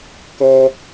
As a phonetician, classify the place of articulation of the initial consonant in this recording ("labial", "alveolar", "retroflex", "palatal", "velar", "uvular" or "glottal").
velar